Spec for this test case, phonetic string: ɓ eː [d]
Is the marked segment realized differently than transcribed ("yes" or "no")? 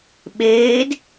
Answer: no